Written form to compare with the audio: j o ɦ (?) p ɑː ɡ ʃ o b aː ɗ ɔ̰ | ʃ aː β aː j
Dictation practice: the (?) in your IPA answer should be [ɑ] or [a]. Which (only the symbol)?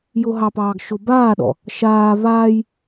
ɑ